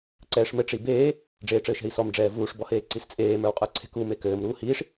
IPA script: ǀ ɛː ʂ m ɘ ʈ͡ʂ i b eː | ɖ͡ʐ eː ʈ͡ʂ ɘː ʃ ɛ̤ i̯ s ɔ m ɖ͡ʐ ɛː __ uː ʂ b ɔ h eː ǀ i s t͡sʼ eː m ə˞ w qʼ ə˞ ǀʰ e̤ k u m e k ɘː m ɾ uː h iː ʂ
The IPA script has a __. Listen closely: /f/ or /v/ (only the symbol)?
v